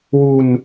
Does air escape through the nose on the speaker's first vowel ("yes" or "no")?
no